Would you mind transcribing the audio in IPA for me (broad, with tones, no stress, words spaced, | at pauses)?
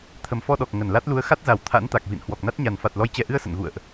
t̪ʰə˨˩mfɔ˧ɗɔ˨˩k̚ ŋə˧˩nla˦˥t̚ lu˨˦ə̯xa˦˥t̚za˧˩w t̪ʰa̰˧˥nt̪a˨˩k̚vḭ˧˨n hwɔ˨˩k̚na˦˥t̚ɲa˨˩n fa˨˩t̚lɔ˨˦jt͡ɕɛ˨˩ʔɨ˧ə̯ sə̰˧˨nɣṵ˧˨ə̯ʔ